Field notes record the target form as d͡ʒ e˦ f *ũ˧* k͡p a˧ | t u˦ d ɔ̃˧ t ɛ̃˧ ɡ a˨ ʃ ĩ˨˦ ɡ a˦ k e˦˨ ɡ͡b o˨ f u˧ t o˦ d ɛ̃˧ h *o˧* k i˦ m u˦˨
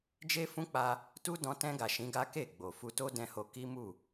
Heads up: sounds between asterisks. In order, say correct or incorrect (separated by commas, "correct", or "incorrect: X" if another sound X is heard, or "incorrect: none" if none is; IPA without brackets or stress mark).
incorrect: ũ˦, correct